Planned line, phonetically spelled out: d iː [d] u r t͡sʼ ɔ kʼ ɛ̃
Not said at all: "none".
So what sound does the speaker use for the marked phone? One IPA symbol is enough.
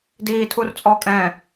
tʰ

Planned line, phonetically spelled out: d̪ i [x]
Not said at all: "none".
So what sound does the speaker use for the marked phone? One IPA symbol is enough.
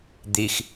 x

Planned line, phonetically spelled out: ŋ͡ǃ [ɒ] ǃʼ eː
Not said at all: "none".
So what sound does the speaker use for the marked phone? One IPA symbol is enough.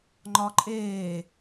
ɒ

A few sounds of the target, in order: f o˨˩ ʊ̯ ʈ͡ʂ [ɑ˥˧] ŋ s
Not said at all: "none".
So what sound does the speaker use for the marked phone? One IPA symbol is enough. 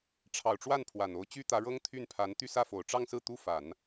ɑ˥˧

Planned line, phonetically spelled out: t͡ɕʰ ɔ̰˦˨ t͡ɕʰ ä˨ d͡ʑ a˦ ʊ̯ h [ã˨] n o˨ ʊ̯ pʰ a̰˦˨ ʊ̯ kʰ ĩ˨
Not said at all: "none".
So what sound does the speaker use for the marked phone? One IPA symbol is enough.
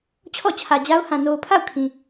ã˨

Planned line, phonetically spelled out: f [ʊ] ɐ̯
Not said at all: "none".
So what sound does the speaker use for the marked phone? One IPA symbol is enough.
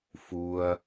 u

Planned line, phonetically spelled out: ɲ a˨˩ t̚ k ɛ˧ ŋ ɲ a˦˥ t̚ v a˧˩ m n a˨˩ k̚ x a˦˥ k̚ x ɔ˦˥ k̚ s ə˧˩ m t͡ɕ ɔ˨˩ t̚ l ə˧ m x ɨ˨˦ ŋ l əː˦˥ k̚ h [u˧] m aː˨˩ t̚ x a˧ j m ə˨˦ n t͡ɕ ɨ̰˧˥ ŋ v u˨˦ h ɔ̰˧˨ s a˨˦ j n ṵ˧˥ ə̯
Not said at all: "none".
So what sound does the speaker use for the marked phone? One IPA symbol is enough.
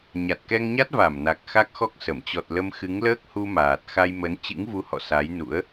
u˧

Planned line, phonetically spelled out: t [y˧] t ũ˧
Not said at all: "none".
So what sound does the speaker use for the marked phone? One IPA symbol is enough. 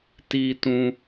i˧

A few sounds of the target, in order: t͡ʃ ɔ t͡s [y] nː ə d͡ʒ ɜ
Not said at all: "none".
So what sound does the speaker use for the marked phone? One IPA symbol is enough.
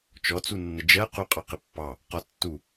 u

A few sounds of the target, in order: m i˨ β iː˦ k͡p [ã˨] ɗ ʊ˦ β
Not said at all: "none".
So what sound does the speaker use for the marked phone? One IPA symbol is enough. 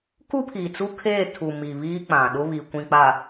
ã˨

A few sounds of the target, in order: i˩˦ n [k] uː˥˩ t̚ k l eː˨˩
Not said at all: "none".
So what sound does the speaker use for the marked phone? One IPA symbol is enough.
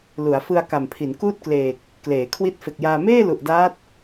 k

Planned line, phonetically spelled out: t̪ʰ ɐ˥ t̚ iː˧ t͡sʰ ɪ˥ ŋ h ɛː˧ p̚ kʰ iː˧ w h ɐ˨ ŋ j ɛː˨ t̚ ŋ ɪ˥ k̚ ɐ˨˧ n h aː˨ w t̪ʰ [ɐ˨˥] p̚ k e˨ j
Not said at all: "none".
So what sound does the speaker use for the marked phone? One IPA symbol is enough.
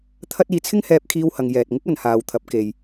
ɐ˨˥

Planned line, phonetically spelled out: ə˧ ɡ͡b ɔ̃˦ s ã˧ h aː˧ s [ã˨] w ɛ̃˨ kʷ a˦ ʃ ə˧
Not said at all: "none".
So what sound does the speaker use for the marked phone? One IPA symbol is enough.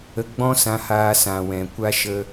ã˨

